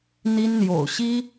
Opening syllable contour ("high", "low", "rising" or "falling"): high